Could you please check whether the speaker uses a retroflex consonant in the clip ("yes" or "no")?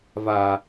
no